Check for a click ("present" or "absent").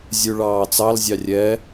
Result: absent